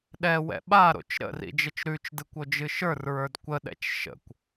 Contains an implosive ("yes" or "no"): yes